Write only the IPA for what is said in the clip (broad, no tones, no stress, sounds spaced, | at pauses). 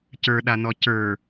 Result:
c ə˞ ɗ a n ɔ c ə˞